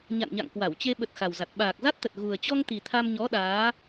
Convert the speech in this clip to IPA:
ɲ a̰˧˨ n ɲ a̰˧˨ ŋ k w a˧˩ w t͡ɕ e˧ ɓ ə˨˩ t̚ x a˨˩ w z a˨˩ t̚ ɓ aː˨˩ k̚ z a˦˥ t̚ t̪ ə˨˩ t̚ ɣ u˨˩ ə̯ t͡ɕ ɔ˧ ŋ t̪ i˨˩ t̪ʰ a˧ m ɲ ɔ˨˦ ɗ aː˨˦

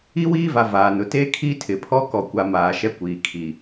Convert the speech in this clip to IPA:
i˦ w iː˦ v a˨ v aː˨ n ʊ˨ t e˦ kʰ i˦ tʰ ɪ˨ pʰ ɔ˦ k ɔ˨ kʷ a˨ m aː˨ ʃ ɛ˦ kʷ iː˨ kʰ i˨

